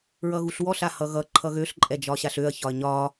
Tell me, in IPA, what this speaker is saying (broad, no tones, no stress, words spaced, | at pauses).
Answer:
ɹʌɣuɬwɔɬ ahʌɣʌ ǃʰʌɣøɬ ǃʼɛd͡ʒɒɕaɬøɐ̯ çɒɐ̯ɲɒ